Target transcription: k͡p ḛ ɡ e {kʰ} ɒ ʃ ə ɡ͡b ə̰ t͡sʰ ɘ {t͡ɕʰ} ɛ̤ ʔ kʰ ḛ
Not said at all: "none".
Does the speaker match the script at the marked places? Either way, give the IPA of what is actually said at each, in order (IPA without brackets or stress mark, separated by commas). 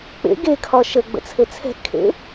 kʰ, t͡sʰ